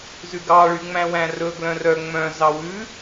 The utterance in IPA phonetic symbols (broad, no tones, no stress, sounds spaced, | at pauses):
z ʉ ɡ ɑ ɭ y ŋ͡m æ̃ w æ̃ r ɵ ɡ l œ̃ r œ ŋ͡m œ̃ z ɑ w ʉ